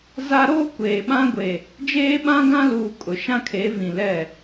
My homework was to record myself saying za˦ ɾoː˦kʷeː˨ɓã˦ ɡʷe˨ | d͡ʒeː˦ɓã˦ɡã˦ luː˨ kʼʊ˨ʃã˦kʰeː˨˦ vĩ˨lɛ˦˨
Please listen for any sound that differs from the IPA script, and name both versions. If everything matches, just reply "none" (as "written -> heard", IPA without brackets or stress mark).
none